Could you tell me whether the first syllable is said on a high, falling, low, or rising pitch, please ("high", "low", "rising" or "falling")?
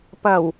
low